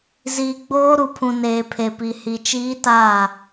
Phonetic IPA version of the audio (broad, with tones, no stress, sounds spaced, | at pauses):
z iː˨ ɡ͡b oː˦ ɾ u˨ pʰ ũ˨ n eː˨ pʰ e˨ p i˨ h i˨ t͡ʃ iː˦ t aː˦˨